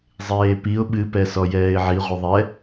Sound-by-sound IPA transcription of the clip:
zˤ eː p i ʊ̯ ɓ ɨ p ɛ s ɔ j ɛː ɪ̯ ʕ i ʁʷ ɨ ðˤ ɛ

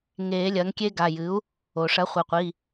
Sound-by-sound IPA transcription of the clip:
ŋ e˨˩˦ lʲ ɐ˩˥ ŋ kʲ e˦˥ ɡ a˩˧˩ j ɨ˩˥ u̯ | o˩ ʂ ɐ˩˥ χʷ ɘ˩˧˩ qʷ i˩˧˩

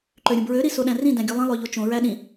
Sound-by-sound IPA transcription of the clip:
ǃ ø ɾʲ ũ b ɹ ø ɾ i s o ɗ æ̃ r ĩ d æ̃ ɡʲ u lˠ ĩ lˠ ø ʎ o t͡ʃ õ ɹ æ ɗ ĩ

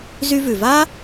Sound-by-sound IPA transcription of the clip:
z y˧ v ʉ˩ v a˥

